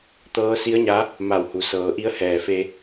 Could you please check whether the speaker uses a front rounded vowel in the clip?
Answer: no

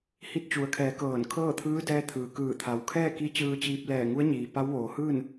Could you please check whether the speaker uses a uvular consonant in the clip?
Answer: no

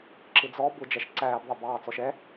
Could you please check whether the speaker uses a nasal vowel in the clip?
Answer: no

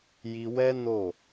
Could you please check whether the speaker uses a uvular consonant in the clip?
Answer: no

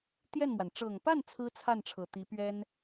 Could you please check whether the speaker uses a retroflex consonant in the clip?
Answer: yes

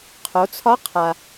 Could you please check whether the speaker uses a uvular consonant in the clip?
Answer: yes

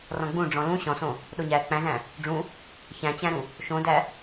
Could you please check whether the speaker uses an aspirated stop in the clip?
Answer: no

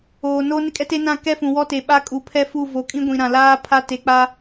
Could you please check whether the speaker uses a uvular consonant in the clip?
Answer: no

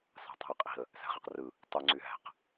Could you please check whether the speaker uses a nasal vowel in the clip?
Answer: no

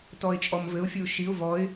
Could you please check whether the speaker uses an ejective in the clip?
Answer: yes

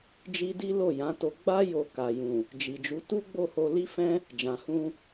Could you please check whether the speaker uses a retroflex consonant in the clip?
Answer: no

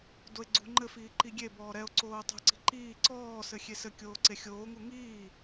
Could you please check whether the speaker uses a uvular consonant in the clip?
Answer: no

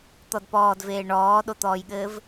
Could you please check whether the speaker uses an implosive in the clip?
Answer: yes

